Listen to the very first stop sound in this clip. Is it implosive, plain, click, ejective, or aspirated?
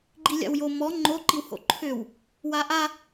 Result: click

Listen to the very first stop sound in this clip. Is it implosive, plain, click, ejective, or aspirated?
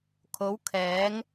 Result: aspirated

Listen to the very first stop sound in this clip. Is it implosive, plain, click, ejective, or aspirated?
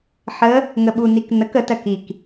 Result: implosive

